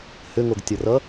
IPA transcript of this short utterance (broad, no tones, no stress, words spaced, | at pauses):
hʏŋoɡtʲʌrʌ